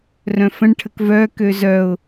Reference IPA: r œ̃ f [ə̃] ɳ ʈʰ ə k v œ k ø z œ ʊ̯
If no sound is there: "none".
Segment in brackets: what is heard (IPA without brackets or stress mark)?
ə̃